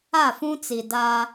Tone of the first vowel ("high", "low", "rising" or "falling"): falling